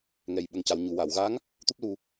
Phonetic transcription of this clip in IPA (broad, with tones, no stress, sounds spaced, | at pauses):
ŋ ɛ˨˩ j ɓ ə˨˩ ŋ c a˨˩˨ w ɲ u˨˩˨ w a˨˩˨ w ɣ a˧˥ ŋ | t̪ u˦˥ p̚ l u˧